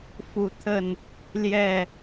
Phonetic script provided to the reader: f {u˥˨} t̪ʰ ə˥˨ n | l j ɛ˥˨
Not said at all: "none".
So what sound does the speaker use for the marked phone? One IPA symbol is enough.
u˨˦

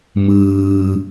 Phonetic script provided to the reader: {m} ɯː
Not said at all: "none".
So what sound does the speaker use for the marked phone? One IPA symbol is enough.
m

